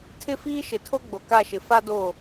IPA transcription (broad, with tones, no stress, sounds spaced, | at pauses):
tʰ ɪ˦ f iː˦ ʃ ɪ˨ tʰ o˦ ɡ͡b o˨ k a˦˨ ʃ ɪ˨ f a˦ d o˦˨